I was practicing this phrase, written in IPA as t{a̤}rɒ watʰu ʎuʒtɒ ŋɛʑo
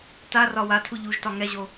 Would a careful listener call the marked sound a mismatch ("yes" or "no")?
yes